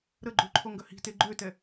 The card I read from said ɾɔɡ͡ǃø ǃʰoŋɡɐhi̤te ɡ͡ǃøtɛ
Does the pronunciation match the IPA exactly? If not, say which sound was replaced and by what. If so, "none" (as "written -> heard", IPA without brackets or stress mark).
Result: ɔ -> ə